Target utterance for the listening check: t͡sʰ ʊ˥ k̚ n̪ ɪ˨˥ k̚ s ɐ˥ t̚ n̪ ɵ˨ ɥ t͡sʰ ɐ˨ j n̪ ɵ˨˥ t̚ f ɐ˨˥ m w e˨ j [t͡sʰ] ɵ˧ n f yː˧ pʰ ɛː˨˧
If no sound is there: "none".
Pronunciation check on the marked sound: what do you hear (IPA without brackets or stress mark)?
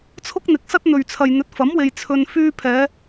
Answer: t͡sʰ